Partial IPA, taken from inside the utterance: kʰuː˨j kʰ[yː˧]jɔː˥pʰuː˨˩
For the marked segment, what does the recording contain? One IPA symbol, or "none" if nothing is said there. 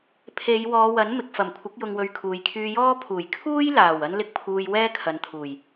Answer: yː˧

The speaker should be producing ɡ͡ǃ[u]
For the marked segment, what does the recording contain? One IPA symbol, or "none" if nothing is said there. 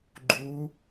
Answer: u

